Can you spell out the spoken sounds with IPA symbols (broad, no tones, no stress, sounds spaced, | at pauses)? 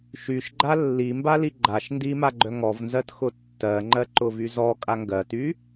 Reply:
ʃ y ʃ ɡ͡ǃ a lː i m b a l i ɡ͡ǃ a ʃ n d i m a ɡ͡ǃ œ ŋ ɔ v n z ɜ t x ʊ tː ɜ ŋ͡ǃ ɜ ǃ ʊ v y z ɔ kʼ a ŋ ɡ ɜ t y